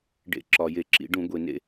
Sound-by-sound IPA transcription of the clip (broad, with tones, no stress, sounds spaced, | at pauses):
ɖ ḛ˧˩˧ ǁ ɒ˨˩ j e˧˩˧ ǁ ḭ˧˩˧ ɖ ũ˧˩˧ ɡʷ e˨˩ n ḛ˧